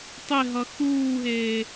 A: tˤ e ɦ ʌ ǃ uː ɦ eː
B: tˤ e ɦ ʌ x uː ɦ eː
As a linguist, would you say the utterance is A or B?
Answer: B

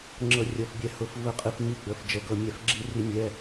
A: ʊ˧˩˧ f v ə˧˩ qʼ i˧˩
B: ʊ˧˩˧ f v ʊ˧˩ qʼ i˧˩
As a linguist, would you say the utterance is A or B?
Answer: A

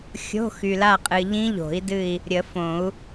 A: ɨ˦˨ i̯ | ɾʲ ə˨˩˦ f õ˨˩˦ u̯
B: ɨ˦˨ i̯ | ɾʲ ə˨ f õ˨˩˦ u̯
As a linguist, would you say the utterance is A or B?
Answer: A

